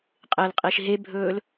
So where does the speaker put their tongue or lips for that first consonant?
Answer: uvula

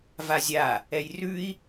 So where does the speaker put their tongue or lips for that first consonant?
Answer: lips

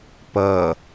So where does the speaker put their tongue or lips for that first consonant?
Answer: lips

